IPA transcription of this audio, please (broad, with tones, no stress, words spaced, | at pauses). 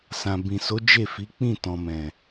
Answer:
sã˨ bĩ˨so˨˦ d͡ʒe˦˨fi˨˦ k͡pĩ˦˨tɔ̃˨mɛ̃˨